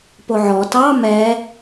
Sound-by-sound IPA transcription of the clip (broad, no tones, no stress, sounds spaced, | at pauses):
p o ʕ ɔ t ɑ m ɛ